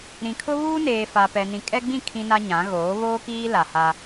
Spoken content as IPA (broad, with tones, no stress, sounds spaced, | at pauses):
ɾ ĩ˨ kʰ ʊ˦ β uː˦ n eː˨ f a˨ p ɛ˨ n ĩ˨ kʼ ɛ˦ ɡ͡b ĩ˦˨ kʰ ĩ˦ n a˦ ɲ ã˨˦ ɣ oː˨˦ β oː˦ k iː˦ l a˨ h a˦